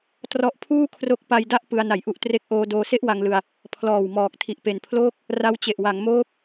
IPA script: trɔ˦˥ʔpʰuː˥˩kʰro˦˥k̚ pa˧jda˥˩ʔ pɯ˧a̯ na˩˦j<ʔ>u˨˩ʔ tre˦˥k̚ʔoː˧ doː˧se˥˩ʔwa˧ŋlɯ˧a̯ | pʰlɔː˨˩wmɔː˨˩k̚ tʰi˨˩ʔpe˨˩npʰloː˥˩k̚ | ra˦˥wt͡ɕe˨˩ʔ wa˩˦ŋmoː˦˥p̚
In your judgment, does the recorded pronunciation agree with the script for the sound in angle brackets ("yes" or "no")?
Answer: yes